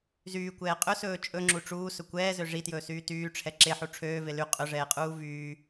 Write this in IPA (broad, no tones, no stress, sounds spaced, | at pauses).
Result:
z yː kʷ ɛː qʼ ɵ s ɵː t͡ʃʼ ɵ ŋ͡ǁ u ʈ͡ʂ uː s ɵ kʷ ɛː z ø ʐ i t j ɵː s yː t yː ʈ͡ʂʰ ɛ ǁ e ħ u ʈ͡ʂʰ øː v e l y qʼ ɵ ʐ ɛː qʼ uː v yː